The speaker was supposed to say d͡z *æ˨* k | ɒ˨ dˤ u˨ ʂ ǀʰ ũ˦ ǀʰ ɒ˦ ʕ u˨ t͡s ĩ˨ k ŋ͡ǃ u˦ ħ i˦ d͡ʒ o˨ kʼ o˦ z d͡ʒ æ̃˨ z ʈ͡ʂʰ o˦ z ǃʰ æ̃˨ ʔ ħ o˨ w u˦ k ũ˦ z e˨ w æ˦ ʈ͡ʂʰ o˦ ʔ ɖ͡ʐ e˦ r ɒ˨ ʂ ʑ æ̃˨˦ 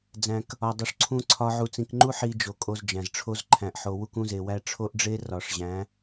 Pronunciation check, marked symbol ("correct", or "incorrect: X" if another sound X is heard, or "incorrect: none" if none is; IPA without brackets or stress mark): incorrect: æ̃˨